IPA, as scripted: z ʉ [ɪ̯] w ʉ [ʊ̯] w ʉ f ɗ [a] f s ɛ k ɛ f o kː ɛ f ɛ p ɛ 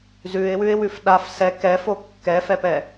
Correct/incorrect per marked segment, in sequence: correct, incorrect: ɪ̯, correct

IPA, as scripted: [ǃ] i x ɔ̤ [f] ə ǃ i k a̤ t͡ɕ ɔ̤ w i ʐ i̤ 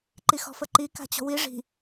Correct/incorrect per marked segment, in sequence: correct, correct

